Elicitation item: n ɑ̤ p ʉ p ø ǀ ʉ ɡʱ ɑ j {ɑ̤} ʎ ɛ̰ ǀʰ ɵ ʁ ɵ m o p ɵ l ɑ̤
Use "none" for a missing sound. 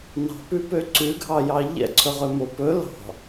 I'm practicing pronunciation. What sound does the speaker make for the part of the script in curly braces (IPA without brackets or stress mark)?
ɑ